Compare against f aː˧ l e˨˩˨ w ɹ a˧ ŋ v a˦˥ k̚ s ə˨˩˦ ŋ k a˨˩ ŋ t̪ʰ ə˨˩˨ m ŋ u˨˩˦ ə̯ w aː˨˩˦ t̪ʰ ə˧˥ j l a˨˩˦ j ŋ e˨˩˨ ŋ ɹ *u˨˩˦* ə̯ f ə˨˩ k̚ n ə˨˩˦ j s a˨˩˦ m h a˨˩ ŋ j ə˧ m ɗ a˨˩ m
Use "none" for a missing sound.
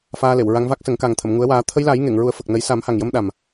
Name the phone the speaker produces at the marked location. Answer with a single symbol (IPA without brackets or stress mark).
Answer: u˨˩˦